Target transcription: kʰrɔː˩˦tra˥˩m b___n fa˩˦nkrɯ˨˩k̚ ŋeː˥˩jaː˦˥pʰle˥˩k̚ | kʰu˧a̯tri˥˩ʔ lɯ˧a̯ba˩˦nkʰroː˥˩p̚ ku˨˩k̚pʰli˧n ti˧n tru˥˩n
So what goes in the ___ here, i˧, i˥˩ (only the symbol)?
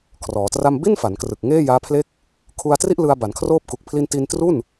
i˥˩